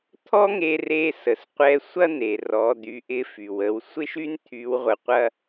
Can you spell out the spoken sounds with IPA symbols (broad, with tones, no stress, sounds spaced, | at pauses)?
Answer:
t̪ʰ ɔ˥ ŋ e˧ r e˧ s ə˩ s qʷ ɛ˧ sʷ ɐ˥ n̪ e˩ r ɔ˩˧ d̪ y˩˧ ʔ ɪ˧ f y˩ w ə˩˧ w sʷ ɪ˥ ʃ y˥ n t̪ʰ y˧˥ w ʁʷ ə˧ qʷ ɐ˥